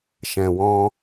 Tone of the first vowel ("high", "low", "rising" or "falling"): low